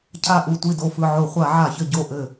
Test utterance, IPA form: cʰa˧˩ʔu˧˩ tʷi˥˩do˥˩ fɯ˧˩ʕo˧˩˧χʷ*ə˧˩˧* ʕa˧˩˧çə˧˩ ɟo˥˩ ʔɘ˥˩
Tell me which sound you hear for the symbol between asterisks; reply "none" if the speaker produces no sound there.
a˧˩˧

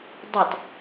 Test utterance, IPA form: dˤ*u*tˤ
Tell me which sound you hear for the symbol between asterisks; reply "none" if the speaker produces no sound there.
u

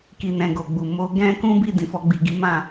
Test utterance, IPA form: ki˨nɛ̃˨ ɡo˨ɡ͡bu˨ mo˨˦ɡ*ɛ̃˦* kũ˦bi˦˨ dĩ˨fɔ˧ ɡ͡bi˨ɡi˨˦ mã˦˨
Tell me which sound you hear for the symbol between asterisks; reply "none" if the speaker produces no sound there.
ɛ̃˦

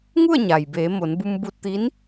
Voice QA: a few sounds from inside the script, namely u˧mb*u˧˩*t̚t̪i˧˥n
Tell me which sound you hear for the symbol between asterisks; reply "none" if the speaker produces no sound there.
u˧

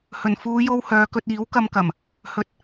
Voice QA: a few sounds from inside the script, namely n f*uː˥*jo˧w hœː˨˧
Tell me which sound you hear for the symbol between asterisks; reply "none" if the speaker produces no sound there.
uː˨˧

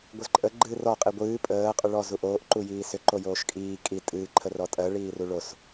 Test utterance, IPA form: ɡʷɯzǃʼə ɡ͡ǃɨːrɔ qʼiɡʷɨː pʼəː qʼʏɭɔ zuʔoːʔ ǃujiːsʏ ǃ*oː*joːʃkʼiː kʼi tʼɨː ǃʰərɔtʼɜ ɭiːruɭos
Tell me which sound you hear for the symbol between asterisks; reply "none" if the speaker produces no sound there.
o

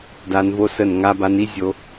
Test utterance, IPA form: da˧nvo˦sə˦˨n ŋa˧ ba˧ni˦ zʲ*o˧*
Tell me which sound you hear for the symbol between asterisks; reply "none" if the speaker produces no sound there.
o˧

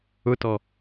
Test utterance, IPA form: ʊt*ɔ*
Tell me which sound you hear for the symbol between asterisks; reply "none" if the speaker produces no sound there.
ɔ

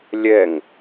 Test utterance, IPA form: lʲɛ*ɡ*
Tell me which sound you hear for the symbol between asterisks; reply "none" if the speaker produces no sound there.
ŋ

